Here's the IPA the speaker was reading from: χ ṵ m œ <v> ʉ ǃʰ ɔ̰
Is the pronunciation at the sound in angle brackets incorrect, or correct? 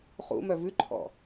correct